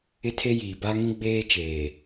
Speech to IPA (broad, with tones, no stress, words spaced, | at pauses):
ɪ˦tʰe˦jiː˨ ba˦ŋĩ˦ ɡ͡beː˦ t͡ʃeː˨